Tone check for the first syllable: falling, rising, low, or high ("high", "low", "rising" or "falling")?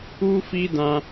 high